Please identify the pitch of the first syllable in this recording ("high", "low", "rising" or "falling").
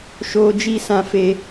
high